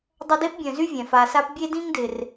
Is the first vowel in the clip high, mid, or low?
low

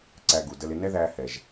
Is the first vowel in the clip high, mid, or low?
low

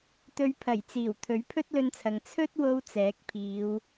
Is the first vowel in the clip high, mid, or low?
mid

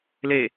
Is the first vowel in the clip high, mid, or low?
mid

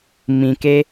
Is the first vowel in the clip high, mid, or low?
high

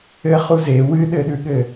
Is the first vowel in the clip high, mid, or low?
mid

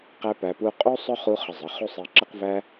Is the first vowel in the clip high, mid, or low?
low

